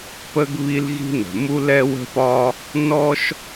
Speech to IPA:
p ə˥ ɡ β i˥ l ɣ i̤˥ n ə̤˩ m u˥ l ɛ˥ w ə̤˥ p ɒ˥ | n ɔ˥ ʃ

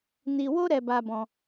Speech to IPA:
n i˧ w o˦ ɾ ɛ˧ b a˧ b ɔ̃˧

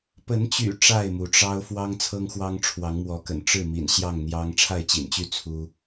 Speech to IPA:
p ə˨˦ n t͡ɕ y̰˨˩ ʈ͡ʂ a˥˨ ɪ̯ m u˩ ʈ͡ʂ ɑ˦ ʊ̯ f w ɑ˦ ŋ t͡sʰ ɤ˦ ŋ x w ɑ˦ ŋ ʈ͡ʂʰ w ɑ˨˦ ŋ m w ɔ˨˦ k ə̰˨˩ n ʈ͡ʂ ɻ̩˥˨ m ḭ˨˩ n ɕ j ɑ˥˨ ŋ n̪ j ɑ˦ ŋ ʈ͡ʂʰ a˥˨ ɪ̯ t͡ɕ ḭ˨˩ n t͡ɕ y˥˨ t͡sʰ u˦

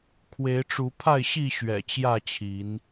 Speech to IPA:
kʰ w e˨˦ ɪ̯ ʈ͡ʂ u˨˦ pʰ a˥˨ ɪ̯ ɕ i˥˨ ɕ ɥ ɛ̰˨˩ t͡ɕ j ä˥˨ t͡ɕʰ i˨˦ n

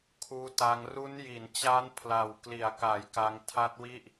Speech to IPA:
kʰ uː˧ t a˧ ŋ r u˦˥ n j i˩˦ n t͡ɕ a˦˥ n pʰ l a˨˩ w k l i˩˦ a̯ k a˩˦ j k a˧ ŋ tʰ a˦˥ t̚ w i˥˩ ʔ

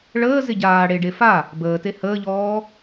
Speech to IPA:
ɭ əː z ɪ ɟ aː ɽ e ɖ e f a | b əː t e h əː ʎ ɔː

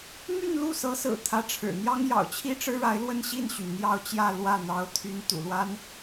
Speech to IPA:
m y˥˧ n l u˥˩ s ɤ˧˥ s ɹ̩˨˩ t̪ʰ ä˧˥ ʈ͡ʂʰ ɻ̩˨˩ n̪ j ɑ˥ ŋ j ɑ̰˨˩ ʊ̯ t͡ɕʰ i˥ ʈ͡ʂ ɻ̩˥ ɻ a˧˥ ɪ̯ l w ə˥˧ n ɕ i˥˩ n ɕ y˩ n n̪ j ɑ˥˧ ʊ̯ t͡ɕ j ä˥˧ l w ä˥˩ n̪ ɑ˧˥ ʊ̯ t̪ʰ y˧˥ n t̪ ṵ˨˩ l w a˥ n

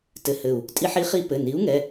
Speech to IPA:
t ɘ˧˩ h ɘ˧˩ u̯ | tʼ i˦ ħ i˨˥ χ i˦ p ɘ˩˧˩ n i˨˥ u̯ ŋ ɛ˩˧˩

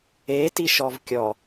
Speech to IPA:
e t i ʃ ɔ v kʲ ɔ

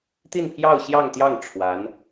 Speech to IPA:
t̪ i˥˧ n pʰ j ɑ˥˧ ʊ̯ ɕ j ɑ˥˧ ŋ t̪ j ɑ˥˩ ŋ ʈ͡ʂʰ w a˧˥ n

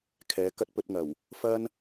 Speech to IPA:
kʰ ɛː˨˥ k ɐ˥ t̚ p ɵ˧ t̚ ŋ ɐ˨˩ w | f ɐ˥ n

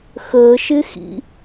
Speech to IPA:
x əː ʃ ɪ x ḭ

